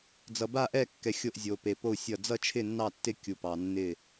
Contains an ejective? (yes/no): no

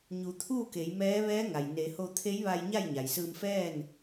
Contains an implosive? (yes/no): no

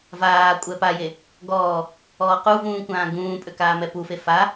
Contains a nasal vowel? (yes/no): yes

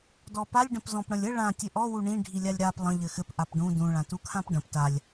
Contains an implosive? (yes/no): no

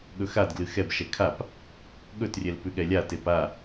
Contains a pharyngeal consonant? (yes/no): no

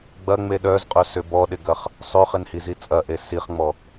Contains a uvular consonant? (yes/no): yes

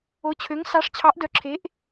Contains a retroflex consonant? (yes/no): yes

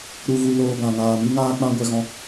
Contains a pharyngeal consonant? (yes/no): no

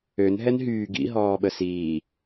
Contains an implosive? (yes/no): yes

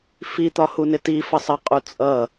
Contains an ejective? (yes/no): yes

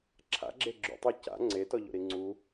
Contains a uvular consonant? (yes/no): no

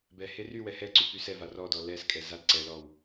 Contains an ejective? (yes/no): yes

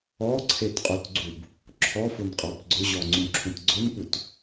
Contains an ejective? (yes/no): yes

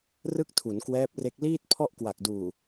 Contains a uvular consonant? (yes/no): no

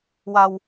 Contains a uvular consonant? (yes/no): no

